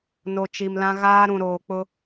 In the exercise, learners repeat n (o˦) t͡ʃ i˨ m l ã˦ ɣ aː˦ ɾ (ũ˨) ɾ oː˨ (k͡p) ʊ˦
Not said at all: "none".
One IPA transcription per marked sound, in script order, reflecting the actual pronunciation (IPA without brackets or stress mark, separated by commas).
o˨, ũ˨, k͡p